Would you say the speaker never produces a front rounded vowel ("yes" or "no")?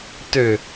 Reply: no